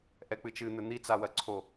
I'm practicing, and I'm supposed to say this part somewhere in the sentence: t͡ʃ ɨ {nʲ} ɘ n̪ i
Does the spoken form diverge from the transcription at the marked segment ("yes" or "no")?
yes